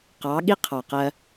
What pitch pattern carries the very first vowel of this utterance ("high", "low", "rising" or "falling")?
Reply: rising